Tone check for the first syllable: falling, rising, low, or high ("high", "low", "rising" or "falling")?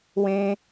high